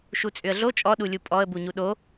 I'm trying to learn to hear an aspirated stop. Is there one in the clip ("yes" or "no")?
no